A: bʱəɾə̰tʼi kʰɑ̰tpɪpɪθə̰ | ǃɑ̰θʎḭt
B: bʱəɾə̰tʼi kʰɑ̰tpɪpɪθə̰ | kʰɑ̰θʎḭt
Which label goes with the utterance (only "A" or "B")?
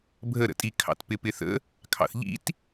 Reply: B